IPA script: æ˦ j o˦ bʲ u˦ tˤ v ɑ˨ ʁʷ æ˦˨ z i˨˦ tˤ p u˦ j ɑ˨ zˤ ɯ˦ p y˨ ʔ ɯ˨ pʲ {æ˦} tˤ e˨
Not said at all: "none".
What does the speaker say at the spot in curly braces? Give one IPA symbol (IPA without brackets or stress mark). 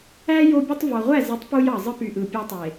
æ˦